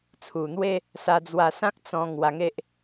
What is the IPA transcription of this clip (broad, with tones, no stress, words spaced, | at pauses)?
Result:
t͡sʰu˨˩n̪we˦ | sa˧d͡zwa˧sã˦k̚ t͡sɔ̃˧ ŋwa˧ŋe˦ʔ